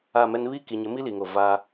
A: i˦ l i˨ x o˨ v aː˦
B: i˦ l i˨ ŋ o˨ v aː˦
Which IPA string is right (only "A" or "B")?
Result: B